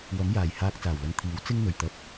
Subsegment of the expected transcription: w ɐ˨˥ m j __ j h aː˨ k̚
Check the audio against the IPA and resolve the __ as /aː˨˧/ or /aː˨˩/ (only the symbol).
aː˨˩